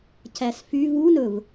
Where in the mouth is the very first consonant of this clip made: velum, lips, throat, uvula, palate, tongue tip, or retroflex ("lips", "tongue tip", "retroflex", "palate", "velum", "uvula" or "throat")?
palate